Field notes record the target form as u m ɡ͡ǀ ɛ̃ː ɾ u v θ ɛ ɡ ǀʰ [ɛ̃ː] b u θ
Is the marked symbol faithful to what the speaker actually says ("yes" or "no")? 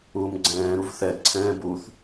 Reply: yes